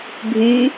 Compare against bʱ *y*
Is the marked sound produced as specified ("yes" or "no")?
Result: yes